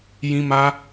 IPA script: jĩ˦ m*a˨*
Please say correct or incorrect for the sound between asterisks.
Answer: incorrect